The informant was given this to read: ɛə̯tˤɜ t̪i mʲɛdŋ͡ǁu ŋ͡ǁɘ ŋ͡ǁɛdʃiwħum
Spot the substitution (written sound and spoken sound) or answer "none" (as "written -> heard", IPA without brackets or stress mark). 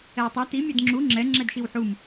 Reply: ɘ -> ɛ